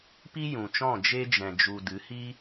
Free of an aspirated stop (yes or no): yes